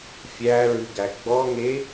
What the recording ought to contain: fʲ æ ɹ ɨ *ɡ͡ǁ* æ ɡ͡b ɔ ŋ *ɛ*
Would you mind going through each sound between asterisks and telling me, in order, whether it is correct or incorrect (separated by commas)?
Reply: incorrect, incorrect